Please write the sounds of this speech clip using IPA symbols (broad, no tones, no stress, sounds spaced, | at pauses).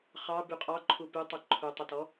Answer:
χ ɑ b y qʼ ɑ ǃʰ u p y tˤ i ǃʰ u tˤ i t ɔ